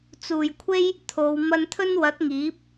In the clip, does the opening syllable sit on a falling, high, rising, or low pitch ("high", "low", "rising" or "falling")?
low